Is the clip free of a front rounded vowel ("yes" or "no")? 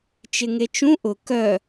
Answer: no